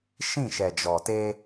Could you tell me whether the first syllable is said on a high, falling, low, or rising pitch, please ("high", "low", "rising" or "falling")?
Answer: falling